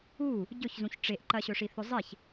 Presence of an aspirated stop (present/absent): absent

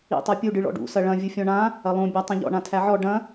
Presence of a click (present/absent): absent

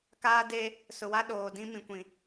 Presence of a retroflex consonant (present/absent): absent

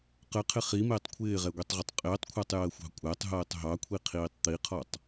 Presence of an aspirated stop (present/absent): present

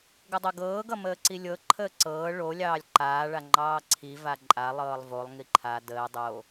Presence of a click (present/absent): present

